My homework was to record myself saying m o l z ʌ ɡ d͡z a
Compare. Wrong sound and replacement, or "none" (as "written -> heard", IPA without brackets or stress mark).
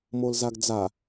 ʌ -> a